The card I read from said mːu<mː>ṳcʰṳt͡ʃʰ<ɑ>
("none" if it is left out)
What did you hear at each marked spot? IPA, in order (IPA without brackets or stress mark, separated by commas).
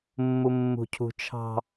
mː, ɑ̤